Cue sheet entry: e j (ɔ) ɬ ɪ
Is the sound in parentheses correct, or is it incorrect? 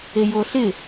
incorrect